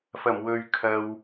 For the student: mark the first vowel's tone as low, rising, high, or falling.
low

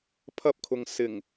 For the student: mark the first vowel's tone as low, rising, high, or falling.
high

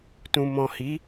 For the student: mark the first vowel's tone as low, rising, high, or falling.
low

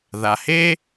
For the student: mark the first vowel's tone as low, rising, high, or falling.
low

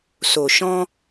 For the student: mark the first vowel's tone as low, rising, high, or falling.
low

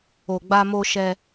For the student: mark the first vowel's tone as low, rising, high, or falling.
low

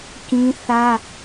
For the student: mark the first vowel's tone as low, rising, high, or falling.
high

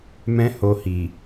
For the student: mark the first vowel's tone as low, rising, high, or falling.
high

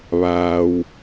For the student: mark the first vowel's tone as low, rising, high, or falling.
low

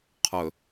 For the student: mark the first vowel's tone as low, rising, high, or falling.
low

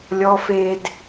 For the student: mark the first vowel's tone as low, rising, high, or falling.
low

